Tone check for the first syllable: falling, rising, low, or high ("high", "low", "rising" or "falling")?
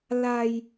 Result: low